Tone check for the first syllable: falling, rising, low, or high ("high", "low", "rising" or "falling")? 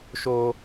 high